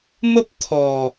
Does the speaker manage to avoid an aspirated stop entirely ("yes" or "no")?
no